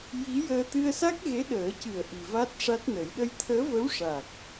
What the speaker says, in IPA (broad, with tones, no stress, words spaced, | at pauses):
ji˧˥jəː˧ t̪ɨ˧ə̯ sa˦˥k̚ɣe˧˥ɗəː˨˩˦cɨ˨˩ə̯ ʔi˨˩va˦˥t̚ʂa˦˥t̚nə˨˩˦j ɗə˧jt̪ʰəː˧˥və˧˥w ʂa˨˩k̚